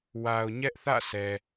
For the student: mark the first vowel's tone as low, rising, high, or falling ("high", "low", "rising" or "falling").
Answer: low